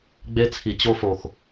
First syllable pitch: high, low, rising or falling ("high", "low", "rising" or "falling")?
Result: high